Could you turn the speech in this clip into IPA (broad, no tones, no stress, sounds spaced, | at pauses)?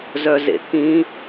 z œ z ḛ t̪ʰ ĩ